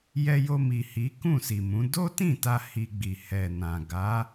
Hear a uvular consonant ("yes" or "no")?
no